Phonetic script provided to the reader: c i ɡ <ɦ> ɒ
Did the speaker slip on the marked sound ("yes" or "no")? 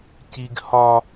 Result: yes